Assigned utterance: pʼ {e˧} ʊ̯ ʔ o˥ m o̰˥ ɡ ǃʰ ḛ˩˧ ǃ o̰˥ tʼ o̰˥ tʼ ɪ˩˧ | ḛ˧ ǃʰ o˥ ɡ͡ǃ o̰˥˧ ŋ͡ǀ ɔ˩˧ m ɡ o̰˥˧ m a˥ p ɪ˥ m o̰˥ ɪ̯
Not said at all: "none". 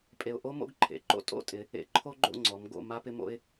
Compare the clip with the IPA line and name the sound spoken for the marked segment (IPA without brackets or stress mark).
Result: e˧